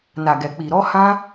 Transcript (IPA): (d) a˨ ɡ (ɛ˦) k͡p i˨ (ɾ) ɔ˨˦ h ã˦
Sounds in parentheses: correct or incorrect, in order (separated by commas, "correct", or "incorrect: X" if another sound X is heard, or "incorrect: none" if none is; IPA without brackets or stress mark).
incorrect: n, incorrect: ɛ˨, correct